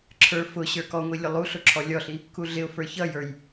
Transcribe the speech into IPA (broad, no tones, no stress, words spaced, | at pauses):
ǁʰə˞ fʊ ɕə˞kɔŋʷi lʲʊlˠuɬʊ ǁʰɔlʲɔɬi | kuɮɪʊ̯fə˞ çʌjə˞j